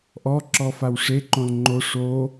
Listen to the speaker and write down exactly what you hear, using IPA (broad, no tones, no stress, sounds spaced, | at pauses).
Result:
ʔ ɔ ǁ ɔ f a w ʂ e ǃ õ l ŋ͡ǃ o ʂ o